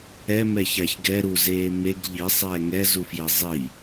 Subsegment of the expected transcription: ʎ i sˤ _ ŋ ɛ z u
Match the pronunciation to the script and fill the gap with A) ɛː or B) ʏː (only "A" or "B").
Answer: A